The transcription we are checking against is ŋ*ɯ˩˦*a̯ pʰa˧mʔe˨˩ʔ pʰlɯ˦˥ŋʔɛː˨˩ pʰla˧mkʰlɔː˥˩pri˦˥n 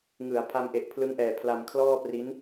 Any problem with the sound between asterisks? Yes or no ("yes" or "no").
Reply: no